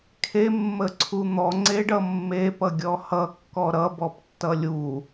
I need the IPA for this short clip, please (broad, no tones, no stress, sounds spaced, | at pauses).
kʰ e mː ə ǀʰ u n̪ ɔ ŋ͡ǀ e ɖ ʌ mː e p ʌ ɡʲ ɔ h ʌ kː ɔ ɾ ʌ b ɔ p tː ʌ lʲ u